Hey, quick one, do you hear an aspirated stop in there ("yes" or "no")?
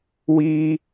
no